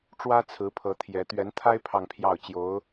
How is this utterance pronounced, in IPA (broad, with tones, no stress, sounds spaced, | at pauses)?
ʈ͡ʂ w ä˥ t͡sʰ ɹ̩˧˥ pʰ ɤ˧˥ t̪ʰ j ɛ˧˥ t̪ ɥ ɛ˧˥ n t̪ʰ a˥ ɪ̯ pʰ ɑ˥˧ ŋ pʰ j ɑ˥˩ ʊ̯ t͡ɕ j o˧˥ ʊ̯